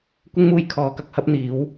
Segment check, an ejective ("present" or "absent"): absent